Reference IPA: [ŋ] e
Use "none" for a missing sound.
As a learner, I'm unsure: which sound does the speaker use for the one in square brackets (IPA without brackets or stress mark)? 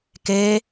k